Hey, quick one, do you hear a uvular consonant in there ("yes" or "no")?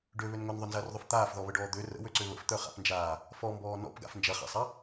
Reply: yes